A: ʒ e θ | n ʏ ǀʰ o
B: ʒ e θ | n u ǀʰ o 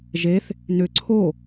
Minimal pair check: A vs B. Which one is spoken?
A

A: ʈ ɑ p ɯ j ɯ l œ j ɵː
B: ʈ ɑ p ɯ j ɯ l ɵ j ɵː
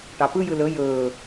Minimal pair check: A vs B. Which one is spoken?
B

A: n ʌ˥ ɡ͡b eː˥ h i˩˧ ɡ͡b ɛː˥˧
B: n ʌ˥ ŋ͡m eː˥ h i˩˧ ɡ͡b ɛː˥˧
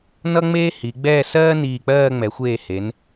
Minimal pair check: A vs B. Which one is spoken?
B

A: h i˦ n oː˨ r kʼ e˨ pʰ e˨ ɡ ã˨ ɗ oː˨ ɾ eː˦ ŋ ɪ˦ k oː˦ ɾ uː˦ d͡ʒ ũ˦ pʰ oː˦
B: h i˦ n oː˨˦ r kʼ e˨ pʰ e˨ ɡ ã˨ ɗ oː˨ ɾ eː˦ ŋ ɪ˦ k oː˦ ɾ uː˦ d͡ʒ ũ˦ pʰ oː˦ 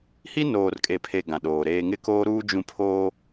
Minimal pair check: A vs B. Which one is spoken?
A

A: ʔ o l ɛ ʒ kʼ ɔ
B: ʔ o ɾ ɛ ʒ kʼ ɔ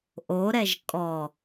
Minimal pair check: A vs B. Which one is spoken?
B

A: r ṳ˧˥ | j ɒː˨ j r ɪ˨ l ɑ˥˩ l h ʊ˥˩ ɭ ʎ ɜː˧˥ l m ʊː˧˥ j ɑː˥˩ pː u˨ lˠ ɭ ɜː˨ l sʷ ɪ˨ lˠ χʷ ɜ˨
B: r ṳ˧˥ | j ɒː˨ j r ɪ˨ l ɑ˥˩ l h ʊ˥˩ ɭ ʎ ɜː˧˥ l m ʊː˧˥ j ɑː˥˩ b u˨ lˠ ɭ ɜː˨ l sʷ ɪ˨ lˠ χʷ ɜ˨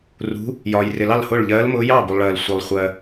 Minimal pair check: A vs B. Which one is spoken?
B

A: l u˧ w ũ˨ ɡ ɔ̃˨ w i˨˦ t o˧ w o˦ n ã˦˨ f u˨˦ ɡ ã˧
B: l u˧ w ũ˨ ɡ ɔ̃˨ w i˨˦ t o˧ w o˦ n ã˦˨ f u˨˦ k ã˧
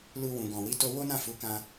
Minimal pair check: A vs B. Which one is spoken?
B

